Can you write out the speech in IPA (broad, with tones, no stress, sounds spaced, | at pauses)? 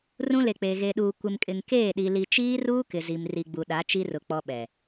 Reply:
r ũ˦ l e˨ k͡p eː˨ ɣ e˨ ɗ uː˨ kʷ ɪ˨ m kʼ ɪ˨ ŋ k eː˦˨ ɗ i˨ l i˨ t͡ʃ iː˦ r uː˦ k ɪ˨ z i˨ m r i˨ ɡ͡b u˨ ɗ a˨˦ t͡ʃ i˦ r ʊ˨ k͡p ɔ˦ ɓ ɛ˨